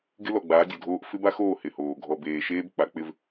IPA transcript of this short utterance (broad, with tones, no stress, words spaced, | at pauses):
ɡɪ˦lɔ˨ɡ͡baː˨˦ dʲo˨dʱoː˦ʔ fɪ˦ba˦xoː˦˨ hɪ˨hoː˨ ɡʱɔ˨beː˨ʃeː˦b k͡pa˨˦k͡pɪ˦v